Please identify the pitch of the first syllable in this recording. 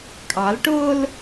rising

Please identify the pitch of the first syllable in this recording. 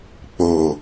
low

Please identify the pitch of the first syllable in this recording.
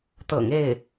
low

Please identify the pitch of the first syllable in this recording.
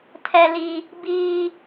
high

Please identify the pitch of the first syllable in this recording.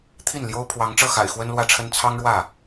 falling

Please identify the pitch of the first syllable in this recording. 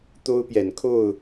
high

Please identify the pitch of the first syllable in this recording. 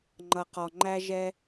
low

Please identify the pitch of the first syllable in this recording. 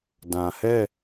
low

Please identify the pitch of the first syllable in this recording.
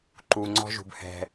low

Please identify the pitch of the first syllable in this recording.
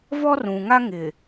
high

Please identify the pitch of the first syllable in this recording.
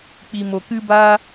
low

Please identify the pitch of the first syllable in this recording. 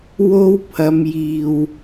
high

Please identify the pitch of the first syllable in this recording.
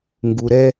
low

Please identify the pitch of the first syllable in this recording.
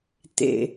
high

